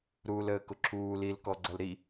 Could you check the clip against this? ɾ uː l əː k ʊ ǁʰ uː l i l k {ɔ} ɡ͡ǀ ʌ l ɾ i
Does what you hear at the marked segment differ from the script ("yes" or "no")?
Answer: no